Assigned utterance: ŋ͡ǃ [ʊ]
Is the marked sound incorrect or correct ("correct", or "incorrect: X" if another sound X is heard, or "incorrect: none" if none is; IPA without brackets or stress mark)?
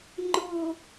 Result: correct